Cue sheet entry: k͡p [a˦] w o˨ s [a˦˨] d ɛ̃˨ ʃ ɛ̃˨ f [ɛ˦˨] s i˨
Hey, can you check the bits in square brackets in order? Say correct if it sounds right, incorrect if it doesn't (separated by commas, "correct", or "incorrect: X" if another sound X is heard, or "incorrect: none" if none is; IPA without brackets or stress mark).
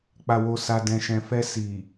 incorrect: a˨, incorrect: a˨, incorrect: ɛ˧